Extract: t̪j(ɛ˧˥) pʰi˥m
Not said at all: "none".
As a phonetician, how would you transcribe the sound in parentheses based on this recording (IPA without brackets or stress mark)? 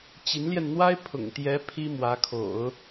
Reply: ɛ˧˥